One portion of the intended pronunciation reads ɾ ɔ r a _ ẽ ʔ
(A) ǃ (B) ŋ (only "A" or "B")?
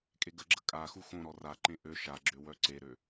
A